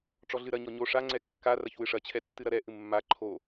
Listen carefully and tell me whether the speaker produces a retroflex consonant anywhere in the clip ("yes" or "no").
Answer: yes